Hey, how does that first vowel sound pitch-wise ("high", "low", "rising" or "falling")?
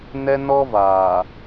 high